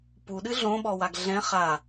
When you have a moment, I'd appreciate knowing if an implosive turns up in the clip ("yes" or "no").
yes